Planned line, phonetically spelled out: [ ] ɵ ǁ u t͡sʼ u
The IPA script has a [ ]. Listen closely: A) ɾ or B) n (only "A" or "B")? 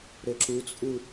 A